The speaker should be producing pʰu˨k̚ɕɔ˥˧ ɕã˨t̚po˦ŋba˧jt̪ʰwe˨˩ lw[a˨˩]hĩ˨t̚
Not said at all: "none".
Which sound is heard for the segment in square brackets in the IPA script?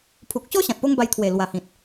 a˨˩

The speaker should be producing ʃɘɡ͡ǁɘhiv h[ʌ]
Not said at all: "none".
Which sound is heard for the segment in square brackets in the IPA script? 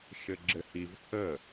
ə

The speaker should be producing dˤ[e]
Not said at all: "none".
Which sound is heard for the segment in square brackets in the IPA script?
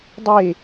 e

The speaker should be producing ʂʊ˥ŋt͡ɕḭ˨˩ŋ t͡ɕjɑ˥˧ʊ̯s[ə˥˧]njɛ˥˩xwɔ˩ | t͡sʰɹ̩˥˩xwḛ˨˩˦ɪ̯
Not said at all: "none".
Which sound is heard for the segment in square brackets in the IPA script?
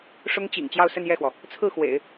ə˥˧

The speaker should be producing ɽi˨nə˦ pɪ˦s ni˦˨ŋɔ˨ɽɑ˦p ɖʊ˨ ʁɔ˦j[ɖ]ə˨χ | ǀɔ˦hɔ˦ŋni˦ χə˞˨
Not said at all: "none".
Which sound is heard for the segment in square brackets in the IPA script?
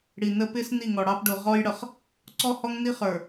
ɽ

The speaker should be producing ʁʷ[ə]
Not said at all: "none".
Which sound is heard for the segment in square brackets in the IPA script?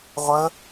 ə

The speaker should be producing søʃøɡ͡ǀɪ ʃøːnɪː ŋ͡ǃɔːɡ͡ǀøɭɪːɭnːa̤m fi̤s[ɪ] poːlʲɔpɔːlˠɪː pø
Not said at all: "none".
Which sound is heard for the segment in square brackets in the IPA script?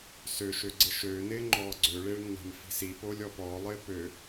i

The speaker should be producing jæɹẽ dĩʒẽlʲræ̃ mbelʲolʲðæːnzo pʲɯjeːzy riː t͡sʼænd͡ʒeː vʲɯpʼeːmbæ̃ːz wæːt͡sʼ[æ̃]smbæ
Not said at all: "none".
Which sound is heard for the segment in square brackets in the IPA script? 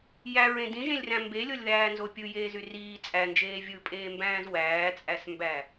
æ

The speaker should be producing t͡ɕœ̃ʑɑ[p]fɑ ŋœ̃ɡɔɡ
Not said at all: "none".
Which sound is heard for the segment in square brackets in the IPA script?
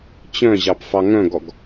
p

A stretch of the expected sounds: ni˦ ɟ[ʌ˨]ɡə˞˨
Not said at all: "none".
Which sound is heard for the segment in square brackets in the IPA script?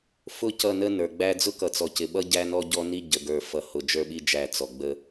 ə˨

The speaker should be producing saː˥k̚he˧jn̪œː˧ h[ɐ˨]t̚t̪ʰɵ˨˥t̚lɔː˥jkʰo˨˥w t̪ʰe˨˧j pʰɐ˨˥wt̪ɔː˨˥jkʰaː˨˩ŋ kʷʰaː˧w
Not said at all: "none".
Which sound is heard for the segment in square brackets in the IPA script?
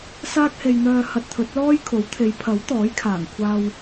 ɐ˧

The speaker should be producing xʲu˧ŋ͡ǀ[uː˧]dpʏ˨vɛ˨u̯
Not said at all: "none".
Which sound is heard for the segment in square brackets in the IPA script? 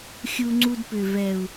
u˧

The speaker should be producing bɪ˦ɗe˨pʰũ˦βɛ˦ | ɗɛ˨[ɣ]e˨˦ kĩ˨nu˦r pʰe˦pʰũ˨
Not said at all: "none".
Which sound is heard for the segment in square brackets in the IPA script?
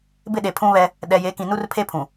j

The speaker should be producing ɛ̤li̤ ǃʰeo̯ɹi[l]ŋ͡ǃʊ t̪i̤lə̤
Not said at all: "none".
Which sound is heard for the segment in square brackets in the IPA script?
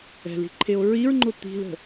ɹ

